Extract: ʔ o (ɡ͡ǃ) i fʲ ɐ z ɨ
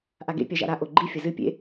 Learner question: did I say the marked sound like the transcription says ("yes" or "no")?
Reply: yes